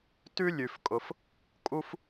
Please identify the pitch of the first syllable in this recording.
high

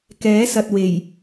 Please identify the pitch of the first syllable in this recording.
rising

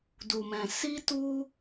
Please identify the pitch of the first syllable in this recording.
low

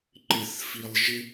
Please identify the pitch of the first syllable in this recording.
low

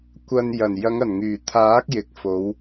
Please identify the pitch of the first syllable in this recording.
low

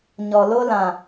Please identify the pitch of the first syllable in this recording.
low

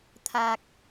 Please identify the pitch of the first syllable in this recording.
low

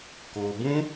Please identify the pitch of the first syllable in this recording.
low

